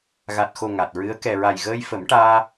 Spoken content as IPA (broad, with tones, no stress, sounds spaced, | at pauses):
ɣ a˨˩ t̚ x o˨˩ ŋ a˨˩ t̚ ɹ ɨ˧˥ ə̯ k ɛ˨˩ ɹ a˨˩ j ɣ əː˧ j f ə˨˩˦ m ʈ aː˧